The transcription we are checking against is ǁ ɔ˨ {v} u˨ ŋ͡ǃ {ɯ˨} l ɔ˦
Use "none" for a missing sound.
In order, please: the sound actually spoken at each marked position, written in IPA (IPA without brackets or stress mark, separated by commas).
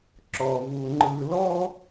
v, ɯ˨